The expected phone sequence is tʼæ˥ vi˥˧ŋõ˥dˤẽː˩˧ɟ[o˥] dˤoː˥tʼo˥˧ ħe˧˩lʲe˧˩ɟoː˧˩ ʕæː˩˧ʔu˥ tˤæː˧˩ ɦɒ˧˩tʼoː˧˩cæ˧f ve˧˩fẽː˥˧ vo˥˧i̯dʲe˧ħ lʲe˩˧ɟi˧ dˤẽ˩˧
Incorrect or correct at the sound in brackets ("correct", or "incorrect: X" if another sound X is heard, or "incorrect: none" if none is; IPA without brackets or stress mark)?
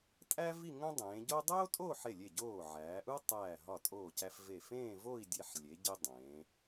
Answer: correct